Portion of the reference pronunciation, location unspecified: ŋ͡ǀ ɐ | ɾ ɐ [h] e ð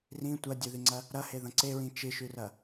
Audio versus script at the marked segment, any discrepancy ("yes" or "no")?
no